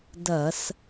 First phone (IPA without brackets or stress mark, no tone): d